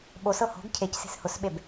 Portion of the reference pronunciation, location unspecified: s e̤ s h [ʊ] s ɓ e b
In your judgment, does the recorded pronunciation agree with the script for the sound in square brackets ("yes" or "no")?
yes